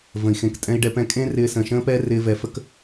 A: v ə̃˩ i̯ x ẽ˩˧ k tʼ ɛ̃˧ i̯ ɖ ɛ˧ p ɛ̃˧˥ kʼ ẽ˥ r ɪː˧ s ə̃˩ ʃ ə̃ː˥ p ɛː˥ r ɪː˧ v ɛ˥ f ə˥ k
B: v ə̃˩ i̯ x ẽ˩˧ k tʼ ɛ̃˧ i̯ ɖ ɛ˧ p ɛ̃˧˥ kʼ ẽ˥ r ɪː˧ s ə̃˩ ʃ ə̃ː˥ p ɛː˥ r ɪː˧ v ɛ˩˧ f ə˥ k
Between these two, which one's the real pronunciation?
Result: B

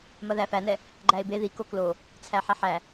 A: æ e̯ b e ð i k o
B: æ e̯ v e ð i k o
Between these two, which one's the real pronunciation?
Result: A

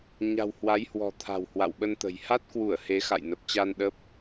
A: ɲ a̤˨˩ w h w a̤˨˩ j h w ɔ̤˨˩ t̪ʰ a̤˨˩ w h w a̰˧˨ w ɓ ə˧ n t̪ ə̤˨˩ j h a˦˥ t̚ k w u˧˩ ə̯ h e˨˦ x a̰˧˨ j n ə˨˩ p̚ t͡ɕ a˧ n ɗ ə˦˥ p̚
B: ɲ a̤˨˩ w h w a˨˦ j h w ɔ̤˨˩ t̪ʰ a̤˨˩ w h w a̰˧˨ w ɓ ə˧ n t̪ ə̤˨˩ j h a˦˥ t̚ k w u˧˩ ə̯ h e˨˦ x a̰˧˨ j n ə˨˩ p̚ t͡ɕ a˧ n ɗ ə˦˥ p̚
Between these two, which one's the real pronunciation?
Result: B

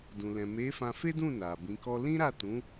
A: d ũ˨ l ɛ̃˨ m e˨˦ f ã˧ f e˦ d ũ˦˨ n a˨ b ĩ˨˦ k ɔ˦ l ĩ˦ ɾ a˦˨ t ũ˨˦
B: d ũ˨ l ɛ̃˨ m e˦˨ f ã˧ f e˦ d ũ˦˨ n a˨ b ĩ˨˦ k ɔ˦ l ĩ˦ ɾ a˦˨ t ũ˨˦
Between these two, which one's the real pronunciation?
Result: A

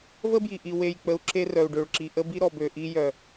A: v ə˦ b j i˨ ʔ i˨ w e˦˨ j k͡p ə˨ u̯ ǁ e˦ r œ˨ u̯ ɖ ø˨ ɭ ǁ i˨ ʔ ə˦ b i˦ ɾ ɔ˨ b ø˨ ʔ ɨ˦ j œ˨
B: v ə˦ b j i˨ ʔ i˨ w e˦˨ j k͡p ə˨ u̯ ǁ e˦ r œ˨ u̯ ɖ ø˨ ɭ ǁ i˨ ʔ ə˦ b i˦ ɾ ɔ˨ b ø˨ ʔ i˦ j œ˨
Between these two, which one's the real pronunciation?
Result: B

